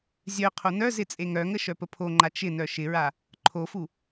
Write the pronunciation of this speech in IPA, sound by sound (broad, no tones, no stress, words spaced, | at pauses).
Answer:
zʲœ qʰonœzɪ t͡sʼeŋœŋə ʃœpəpʰoŋ͡ǃa t͡ʃɪnœ ʃɪɹa | ǃʰofu